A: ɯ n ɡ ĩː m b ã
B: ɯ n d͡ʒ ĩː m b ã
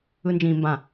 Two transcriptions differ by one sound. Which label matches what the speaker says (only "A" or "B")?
B